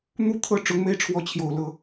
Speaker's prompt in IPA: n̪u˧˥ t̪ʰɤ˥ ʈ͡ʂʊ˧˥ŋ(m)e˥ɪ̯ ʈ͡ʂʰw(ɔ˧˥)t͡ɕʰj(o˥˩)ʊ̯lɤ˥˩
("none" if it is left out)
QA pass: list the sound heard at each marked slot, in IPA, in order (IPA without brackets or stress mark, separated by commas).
m, ɔ˧˥, o˨˩